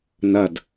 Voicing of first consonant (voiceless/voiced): voiced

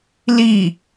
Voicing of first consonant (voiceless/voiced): voiced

